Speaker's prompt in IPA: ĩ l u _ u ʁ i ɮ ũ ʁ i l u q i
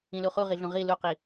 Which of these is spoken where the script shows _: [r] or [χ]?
χ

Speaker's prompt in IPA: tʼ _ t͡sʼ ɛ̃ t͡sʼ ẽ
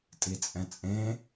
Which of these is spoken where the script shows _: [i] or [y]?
i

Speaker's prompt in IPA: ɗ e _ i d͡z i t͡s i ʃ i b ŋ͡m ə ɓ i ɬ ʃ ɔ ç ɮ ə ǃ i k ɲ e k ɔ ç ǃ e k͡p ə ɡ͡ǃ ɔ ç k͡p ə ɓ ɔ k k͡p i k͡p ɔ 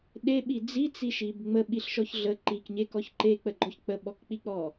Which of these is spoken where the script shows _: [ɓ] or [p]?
ɓ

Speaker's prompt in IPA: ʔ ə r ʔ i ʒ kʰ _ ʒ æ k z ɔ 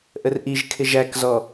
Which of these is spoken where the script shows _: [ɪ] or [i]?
ɪ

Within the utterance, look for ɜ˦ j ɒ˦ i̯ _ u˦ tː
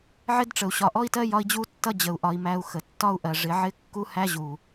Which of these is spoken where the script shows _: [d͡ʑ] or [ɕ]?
d͡ʑ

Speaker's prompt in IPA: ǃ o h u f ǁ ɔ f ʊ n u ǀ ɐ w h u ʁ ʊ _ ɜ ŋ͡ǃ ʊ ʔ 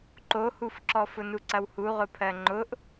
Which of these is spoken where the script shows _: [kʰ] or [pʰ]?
pʰ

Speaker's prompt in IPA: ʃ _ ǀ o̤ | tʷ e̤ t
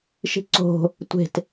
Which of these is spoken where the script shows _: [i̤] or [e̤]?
i̤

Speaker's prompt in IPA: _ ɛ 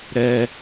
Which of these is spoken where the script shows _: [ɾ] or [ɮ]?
ɾ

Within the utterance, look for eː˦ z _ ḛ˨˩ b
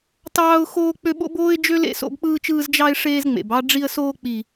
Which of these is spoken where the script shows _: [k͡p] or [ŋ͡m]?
ŋ͡m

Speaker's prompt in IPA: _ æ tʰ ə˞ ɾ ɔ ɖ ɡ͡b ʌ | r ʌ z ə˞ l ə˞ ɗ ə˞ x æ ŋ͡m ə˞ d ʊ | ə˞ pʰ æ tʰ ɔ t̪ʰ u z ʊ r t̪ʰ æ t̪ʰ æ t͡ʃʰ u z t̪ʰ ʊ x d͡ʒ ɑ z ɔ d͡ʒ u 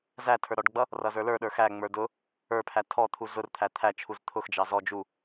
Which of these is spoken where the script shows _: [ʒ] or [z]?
z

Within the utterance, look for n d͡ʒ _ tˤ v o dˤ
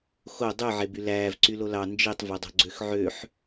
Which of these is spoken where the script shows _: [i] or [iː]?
i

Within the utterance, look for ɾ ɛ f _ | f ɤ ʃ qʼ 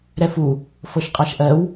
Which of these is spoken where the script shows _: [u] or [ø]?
u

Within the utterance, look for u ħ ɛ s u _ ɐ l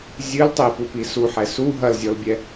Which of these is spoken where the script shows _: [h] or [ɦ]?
ɦ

